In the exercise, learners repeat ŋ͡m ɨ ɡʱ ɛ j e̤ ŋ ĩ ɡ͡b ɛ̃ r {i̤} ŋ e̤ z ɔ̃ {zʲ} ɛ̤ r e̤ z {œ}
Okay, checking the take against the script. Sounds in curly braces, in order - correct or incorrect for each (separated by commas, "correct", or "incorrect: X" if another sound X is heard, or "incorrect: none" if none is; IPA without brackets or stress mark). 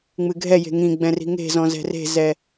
correct, incorrect: z, incorrect: ɛ